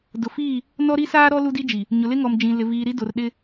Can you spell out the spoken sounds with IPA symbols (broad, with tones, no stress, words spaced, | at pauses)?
dʊ˨fiː˦˨ | nɔ˦ɾi˦saː˦ ɾɔ˦ lu˦di˦d͡ʒi˨ | ɲʊ˨lɪ˦ŋɔ˨md͡ʒĩ˨ lɪ˨viː˨ɾi˦ do˨rɗɪ˦